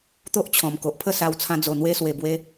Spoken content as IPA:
t̪ o˦ ʔ t͡ɕʰ ɔ̃˨˩ m k o˨ ʔ pʰ ə˥˧ s a˧ w t͡sʰ ã˧ d͡z o˨˩ n̪ w e˧ s w e˨˩ b w e˧

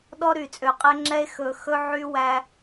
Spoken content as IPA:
ɗ ɔ˦ ɾ y˨ t͡sʼ ø˨ qʼ ɛ˦ ŋ͡ǁ ɛ˦ e̯ x ɵ˨ x ɵ˧ ʕ y˧ w æ˧

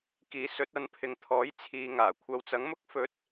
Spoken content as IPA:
k iː˨˥ s ɵ˨˥ t̚ ɐ˨˥ n pʰ ɪ˨˧ ŋ t̪ʰ ɔː˨˥ j t͡sʰ iː˨ ŋ aː˨˩ kʷʰ ɐ˨˧ w t͡s ɐ˨˥ ŋ m ʊ˥ k̚ f ɵ˨˥ t̚

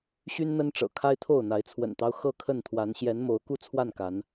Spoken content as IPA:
ɕ y˦ n n̪ ə˦ n ʈ͡ʂ ɤ̰˨˩ kʰ a˦ ɪ̯ t̪ʰ o˥˨ ʊ̯ n̪ a˨˦ ɪ̯ t͡sʰ w ə̰˨˩ n t̪ ɑ˦ ʊ̯ x ɤ˥˨ kʰ ə˥˨ n t̪ʰ w a˨˦ n ɕ j ɛ˨˦ n m o˨˦ ʊ̯ k u˥˨ t͡sʰ w a˥˨ n k a˨˦ n

